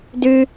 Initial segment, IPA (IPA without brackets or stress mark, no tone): d